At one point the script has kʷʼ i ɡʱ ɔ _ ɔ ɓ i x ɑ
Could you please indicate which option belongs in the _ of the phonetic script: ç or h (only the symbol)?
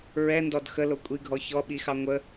ç